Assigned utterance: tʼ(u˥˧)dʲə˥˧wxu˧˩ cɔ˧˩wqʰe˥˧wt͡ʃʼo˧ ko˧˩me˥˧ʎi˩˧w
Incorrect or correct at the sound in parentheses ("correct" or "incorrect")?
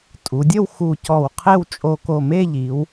incorrect